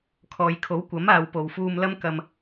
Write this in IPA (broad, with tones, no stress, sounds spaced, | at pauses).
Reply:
kʰ ɔː˨ j kʰ o˨˥ w kʷ ɐ˨˥ m aː˨˧ w p o˨ w f uː˧ m l ɐ˥ m k ɐ˧ m